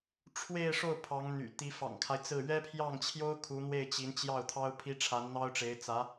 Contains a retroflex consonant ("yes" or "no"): yes